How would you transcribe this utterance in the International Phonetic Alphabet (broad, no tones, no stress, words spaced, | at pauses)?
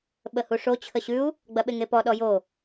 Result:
ɓəhuʂo t͡ɕʰəɕʉu̯ | ɡ͡bɐɓeŋepɔ ɗɔjo